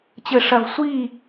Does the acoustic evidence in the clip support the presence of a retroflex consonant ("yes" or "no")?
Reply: yes